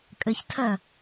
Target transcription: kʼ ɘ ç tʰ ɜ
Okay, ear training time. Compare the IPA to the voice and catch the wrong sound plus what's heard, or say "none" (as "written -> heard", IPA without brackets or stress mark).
none